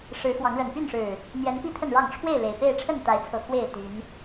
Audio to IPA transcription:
ʂ ɻ̩˨˦ x w ɑ˨˦ ŋ ɻ ə˨˩ n p y˥˨ n ʂ ɻ̩˨˩ | n̪ j ɛ˨˦ n p i˥˨ t̪ʰ ə˥˨ n ɻ ɑ˥˨ ŋ ʈ͡ʂʰ w e˥˨ ɪ̯ l e˨˩ ɪ̯ p e˥˨ ɪ̯ ʈ͡ʂʰ ə˥˨ n t̪ a˨˦ ɪ̯ t͡sʰ ɤ˨˩ x w e˥˨ ɪ̯ t̪ y˨˦ n

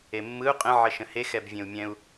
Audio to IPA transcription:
e mː ɯ u̯ qʼ ə̃ ʕ ə ʃ ə̃ h e x ɛ b vʲ ẽ u̯ mʲ ɛ̃ u̯

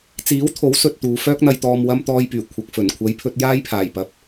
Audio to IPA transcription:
t͡s iː˨˥ w t̪ʰ o˨˥ w s ɵ˨ t̚ t̪ uː˨ f œː˥ k̚ n̪ ɐ˧ j t̪ ɔː˨ m w ɐ˧ m t̪ ɔː˧ j p yː˨˩ kʷʰ ɐ˨ k̚ f ɵ˨˩ n kʷʰ ɐ˨˧ j pʰ ɵ˧ t̚ j aː˥ j pʰ aː˨˩ j p ɐ˨ p̚

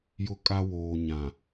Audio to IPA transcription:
j ʊ˦ kʼ a˦ w oː˨ ɲ ã˨

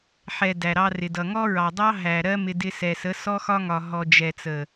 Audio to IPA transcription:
ħ ɛ˨ d æ˨ ɾ ɑ˧ r ɪ˨ d ʌ˨ ŋ ɔ˦ ɹ ɑ˨ dˤ ɑ˦ ɦ æ˨ ɾ ɜ˦ m ɪ˧ d ɪ˧ s ɛ˨ s ə˨˦ s ɔ˦ x ɒ˦ ŋ ɒ˨ ɦ ɔ˨ d͡ʒ ɛ˨ t͡s ə˨

